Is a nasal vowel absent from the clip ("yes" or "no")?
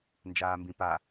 no